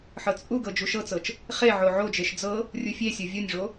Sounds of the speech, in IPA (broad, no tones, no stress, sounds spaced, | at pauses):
ħ ɤ t͡sʼ u ɡ ɤ d͡ʒ u ʃ ɤ t͡s ɤ t͡ʃ | χ e ʕ o ʕ o d͡ʒ e ʃ d͡z ɤ | rʲ u fʲ e sʲ ɤ vʲ o nʲ ʐ o